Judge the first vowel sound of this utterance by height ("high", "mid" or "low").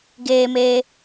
mid